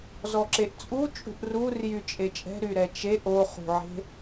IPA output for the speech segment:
z ɔ ǁ e ʔ t͡sʼ u t͡ʃʼ ṳ ʔ r u r j y t͡ʃʼ e t͡ʃʼ ɛ̤ ɾ y ɾ ɛ t͡ʃ e ʔ o χ ṳ ʕ e̤

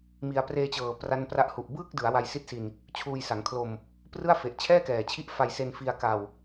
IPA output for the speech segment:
m i˧ a̯ p r eː˧ t͡ɕ ɤː˨˩ p r a˦˥ n p r a˦˥ ʔ h u˨˩ ʔ b ɯː˥˩ k̚ d ɯ˩˦ a̯ w a˧ j s i˦˥ t̚ s i˧ n | t͡ɕʰ uː˧ j s a˩˦ ŋ kʰ l o˧ m | p r ɯ˥˩ a̯ f e˨˩ ʔ t͡ɕʰ ɛː˥˩ k ɛː˨˩ t͡ɕʰ i˦˥ ʔ f a˧ j s e˧ n f i˧ a̯ k a˧ w

